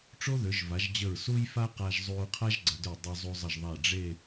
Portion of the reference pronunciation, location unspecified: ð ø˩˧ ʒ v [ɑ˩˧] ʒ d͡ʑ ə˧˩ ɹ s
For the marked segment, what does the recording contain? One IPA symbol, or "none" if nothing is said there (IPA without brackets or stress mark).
a˩˧